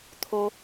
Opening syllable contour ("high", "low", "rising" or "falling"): high